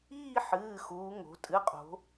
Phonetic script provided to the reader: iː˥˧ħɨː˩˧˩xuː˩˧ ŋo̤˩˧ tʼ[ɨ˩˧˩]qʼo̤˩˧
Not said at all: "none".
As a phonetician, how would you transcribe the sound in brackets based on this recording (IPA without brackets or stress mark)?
ɨ˩˧˩